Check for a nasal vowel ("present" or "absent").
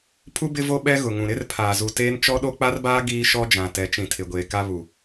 present